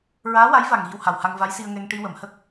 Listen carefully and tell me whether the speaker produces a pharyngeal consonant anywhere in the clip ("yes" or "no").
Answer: no